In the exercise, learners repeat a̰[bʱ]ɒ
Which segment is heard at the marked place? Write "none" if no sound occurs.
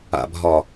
bʱ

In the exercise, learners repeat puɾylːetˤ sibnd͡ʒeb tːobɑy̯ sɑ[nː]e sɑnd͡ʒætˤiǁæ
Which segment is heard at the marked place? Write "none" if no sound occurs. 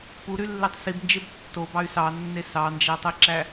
nː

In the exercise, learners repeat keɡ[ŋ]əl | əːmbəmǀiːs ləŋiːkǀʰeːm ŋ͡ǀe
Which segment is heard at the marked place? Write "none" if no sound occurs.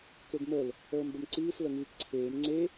m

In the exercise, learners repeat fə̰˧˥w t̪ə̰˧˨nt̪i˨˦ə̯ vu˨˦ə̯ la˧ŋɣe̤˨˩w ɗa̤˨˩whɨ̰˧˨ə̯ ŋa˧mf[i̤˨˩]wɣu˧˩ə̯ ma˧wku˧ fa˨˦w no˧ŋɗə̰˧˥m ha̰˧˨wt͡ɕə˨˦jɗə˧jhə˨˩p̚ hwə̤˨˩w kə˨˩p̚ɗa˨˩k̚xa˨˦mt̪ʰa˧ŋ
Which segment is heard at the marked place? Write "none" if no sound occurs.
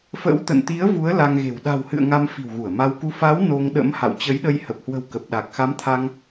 i̤˨˩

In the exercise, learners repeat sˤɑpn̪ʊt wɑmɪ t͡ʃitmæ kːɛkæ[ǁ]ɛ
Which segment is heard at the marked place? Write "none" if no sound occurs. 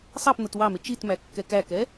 k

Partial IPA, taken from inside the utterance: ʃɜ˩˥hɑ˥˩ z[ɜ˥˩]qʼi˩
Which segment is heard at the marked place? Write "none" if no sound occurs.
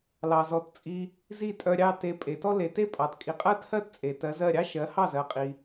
ɜ˩˥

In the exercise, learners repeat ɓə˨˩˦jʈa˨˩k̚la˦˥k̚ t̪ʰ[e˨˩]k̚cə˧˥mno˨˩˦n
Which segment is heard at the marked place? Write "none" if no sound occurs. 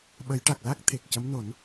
e˨˩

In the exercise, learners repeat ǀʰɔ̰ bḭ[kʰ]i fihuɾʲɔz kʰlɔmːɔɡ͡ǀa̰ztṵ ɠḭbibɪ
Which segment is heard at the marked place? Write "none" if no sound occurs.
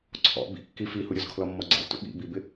kː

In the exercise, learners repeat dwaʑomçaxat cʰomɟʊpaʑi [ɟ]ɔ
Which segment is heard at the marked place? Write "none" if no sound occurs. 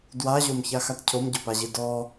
d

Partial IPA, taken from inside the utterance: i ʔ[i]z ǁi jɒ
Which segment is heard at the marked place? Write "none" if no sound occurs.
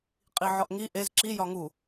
e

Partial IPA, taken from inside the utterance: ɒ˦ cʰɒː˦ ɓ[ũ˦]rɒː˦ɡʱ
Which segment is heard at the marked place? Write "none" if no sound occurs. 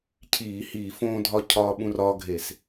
ũ˦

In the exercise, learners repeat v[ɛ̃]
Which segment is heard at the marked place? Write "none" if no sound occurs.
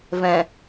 ɛ̃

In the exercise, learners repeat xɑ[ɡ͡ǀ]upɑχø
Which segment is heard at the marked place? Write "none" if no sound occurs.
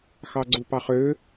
ɡ͡ǀ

